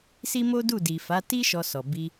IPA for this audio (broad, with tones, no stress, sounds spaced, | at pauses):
s i˦ m o˦ d u˦˨ d i˨ f a˨˦ t i˦ ʃ ɔ˧ s ɔ˨ b i˧